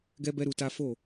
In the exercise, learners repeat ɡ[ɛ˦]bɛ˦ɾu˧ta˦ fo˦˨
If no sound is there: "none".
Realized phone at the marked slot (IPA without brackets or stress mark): ɛ˦